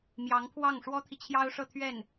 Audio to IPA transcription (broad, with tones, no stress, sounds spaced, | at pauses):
m j ɑ˧˥ ŋ pʰ w ɑ˥˩ ŋ ʂ w ɔ˥ t̪ʰ i˨ t͡ɕʰ j ɑ˥ ʊ̯ ʂ ɤ˥˧ t̪ʰ ɥ ɛ˥˩ n